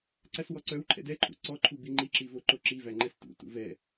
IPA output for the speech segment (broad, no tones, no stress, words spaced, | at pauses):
ǀæswɔǀœwǃʰɛ̰d ɛǃʰṵ ǀɔǃʰu biŋ͡ǃiǁi voǃoǁivæ ŋ͡ǃɛstṵtṵ vɛ